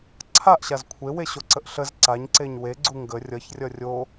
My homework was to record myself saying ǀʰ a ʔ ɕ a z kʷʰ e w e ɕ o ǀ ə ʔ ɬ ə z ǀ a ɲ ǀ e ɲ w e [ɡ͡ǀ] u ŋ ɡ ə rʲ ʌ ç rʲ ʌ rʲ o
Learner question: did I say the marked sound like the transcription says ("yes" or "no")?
yes